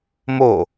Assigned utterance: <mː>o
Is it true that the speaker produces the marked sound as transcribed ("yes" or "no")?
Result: no